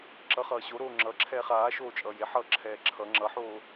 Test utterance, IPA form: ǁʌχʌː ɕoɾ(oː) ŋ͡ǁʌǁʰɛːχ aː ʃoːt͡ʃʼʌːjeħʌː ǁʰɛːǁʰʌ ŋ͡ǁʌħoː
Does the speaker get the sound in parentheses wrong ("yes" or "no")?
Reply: no